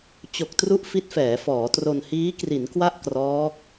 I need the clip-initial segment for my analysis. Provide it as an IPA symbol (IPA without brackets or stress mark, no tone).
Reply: t͡ɕ